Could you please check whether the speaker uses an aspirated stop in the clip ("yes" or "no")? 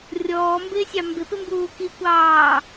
no